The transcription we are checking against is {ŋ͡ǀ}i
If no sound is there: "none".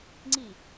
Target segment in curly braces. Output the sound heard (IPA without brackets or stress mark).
ŋ͡ǀ